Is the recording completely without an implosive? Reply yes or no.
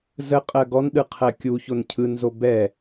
no